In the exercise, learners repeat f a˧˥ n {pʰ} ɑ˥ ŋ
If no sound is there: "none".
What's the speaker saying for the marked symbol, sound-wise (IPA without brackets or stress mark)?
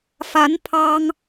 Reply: pʰ